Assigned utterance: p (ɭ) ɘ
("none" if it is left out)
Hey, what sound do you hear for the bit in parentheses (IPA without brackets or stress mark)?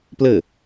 l